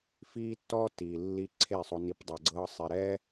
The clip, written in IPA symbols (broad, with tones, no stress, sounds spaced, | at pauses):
f iː˦ tː ɔ˦ t iː˨ lː i˧ ǀʰ e˦˨ sˤ o˧ n i˧ p dˤ a˨ ɡ͡ǀ ɤː˧ sˤ i˨ ɾ ɛː˦